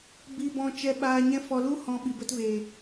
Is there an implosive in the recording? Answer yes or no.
yes